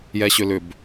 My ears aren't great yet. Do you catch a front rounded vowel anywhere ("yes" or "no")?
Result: yes